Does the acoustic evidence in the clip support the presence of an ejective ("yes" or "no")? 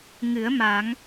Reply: no